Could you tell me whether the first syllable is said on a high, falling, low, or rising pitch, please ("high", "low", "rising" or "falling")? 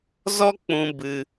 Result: high